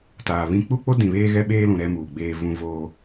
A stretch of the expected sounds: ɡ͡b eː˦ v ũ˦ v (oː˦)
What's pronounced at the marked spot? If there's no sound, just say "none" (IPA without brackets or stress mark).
oː˦